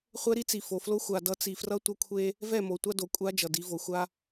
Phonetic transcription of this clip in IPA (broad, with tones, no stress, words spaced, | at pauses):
χʷɛ˦ɾi˦t͡si˨ fo˨flo˦ xʷa˨dʌ˨˦ t͡si˨frʌ˦ tʷʌ˦kʷʰe˦ | vɛ˦˨mo˨tʷa˦do˨ kʷʼa˦ d͡ʒʌ˨di˨˦vo˨ xʷa˦